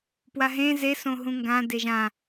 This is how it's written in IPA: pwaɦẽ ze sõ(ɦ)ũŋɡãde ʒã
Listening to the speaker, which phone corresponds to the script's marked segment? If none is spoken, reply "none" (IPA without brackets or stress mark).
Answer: ɦ